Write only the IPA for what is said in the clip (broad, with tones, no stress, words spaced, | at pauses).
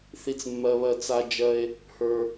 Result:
θi˨t͡smːɜ˨βɜ˨ t͡sa˧d͡ʒɜ˧e̯ | hə˞˨